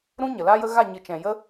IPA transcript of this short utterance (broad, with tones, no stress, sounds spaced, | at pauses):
ɾ ũ˦ ɲ ə˨ l aː˦ j ə˦ ɣ a˦˨ ɲ ɨ˨ t͡ʃ ɛ̃˨ j ə˦